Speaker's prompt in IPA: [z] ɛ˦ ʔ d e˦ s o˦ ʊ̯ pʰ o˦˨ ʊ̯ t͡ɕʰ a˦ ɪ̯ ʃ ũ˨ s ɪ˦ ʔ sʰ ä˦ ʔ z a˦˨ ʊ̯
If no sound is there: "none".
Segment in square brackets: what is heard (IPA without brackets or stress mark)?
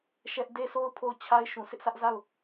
ʃ